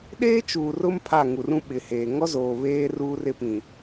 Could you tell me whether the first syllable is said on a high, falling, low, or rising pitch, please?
high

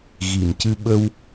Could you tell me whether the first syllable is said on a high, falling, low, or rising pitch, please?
low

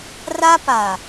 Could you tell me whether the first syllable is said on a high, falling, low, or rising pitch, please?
high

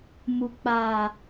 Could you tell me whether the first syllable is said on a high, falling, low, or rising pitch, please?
low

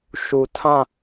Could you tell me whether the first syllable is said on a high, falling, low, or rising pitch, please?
low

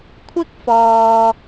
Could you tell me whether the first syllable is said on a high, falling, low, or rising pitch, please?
high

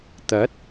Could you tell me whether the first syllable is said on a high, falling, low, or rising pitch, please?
rising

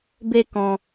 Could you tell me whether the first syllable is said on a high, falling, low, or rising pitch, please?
high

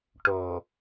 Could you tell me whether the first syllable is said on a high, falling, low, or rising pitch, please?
low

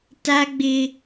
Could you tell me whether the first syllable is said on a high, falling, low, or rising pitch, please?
high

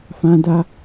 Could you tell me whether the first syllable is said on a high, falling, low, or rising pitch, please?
high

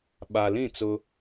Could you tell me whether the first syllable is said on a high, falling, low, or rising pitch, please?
low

